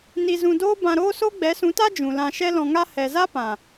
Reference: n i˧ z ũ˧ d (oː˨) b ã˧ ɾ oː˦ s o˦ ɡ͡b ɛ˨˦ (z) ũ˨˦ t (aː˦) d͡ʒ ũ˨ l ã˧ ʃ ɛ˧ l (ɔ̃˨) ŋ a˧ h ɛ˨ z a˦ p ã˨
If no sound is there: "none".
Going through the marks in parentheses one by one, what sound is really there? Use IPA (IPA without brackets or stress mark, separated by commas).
oː˦, s, a˦, ɔ̃˨